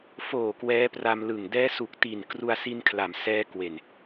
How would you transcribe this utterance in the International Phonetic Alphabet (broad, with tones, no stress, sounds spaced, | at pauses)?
f oː˨˩ k w ɛː˦˥ p r a˧ m l ɯ˨˩ ŋ d ɛː˦˥ s u˨˩ k̚ t i˨˩ n k r u˧ a̯ s i˧ n kʰ l a˩˦ m s ɛː˦˥ k w e˨˩ n